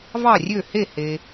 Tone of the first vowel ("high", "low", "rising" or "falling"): falling